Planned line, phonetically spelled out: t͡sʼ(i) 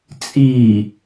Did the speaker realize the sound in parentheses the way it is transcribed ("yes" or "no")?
yes